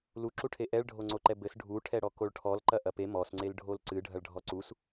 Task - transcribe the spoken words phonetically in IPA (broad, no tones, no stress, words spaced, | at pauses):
luǁuʈʰe ʔɛɭɖʱoŋ͡ǀoǃɛ bɘs ɖʱuʈʰɛ ɽɔkoɭʈʰɔlǃɐ ʔɐpe mɔsŋ͡ǀel ɖʱolǀɨ ɖʱɐɭɖʱɔǀus